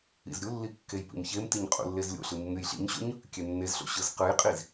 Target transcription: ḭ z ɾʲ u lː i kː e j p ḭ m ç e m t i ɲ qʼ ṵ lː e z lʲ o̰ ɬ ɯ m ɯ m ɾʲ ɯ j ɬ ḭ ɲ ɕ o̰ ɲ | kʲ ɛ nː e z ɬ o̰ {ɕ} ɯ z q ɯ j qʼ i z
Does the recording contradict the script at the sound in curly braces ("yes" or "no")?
no